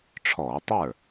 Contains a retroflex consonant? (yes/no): yes